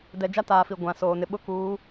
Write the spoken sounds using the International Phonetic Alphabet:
dɛ˨d͡ʒa˦taː˨ fi˨ɡʷã˨soː˨ nɪ˨ɓʊ˦ kuː˨˦

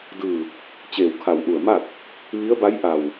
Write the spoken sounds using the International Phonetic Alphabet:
dɯː˧˩ | t͡ɕeː˧˩wkʰa˧˩wʔu˧˩ə̯ma˥˨k̚ | ʋi˧˥ə̯ba˧˥jʔa˧˩w

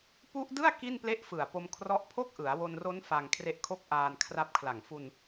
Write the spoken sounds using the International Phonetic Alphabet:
pu˦˥ʔdɯ˥˩a̯ ki˥˩nple˥˩ʔfɯ˨˩a̯ po˧m kʰrɔ˥˩ʔ pʰo˥˩k̚ʔɯ˩˦a̯wo˧nro˦˥n fa˧ŋkʰre˦˥ʔ kʰo˥˩k̚ʔaː˧nkʰra˦˥p̚kʰla˨˩ŋ fu˧n

